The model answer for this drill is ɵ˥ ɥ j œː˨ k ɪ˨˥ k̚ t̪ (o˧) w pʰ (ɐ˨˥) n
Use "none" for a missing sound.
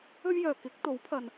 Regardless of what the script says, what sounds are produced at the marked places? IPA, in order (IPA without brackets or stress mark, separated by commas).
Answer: o˨˥, ɐ˨